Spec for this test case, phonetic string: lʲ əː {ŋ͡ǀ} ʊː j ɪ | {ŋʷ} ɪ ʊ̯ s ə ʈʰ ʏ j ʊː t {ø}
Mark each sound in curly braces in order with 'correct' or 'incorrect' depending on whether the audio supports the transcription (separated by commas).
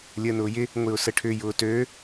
incorrect, correct, correct